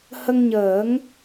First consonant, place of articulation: glottal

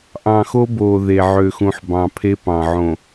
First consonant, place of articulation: glottal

